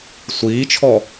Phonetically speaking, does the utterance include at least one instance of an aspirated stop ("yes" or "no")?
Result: yes